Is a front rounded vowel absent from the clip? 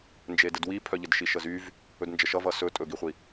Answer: no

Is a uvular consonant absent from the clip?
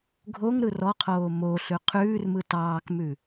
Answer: no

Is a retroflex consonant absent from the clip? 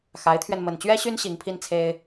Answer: yes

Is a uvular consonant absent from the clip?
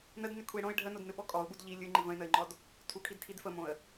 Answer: yes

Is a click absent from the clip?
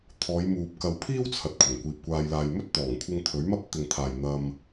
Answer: yes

